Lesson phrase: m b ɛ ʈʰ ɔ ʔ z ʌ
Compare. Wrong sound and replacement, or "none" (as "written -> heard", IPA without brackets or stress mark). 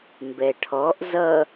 none